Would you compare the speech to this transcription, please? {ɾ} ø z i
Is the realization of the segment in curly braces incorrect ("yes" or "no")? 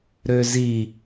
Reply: no